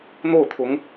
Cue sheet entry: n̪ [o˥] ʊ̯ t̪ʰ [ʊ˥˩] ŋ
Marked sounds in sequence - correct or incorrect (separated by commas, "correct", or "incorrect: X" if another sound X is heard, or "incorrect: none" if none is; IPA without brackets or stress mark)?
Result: incorrect: o˥˩, incorrect: ʊ˧˥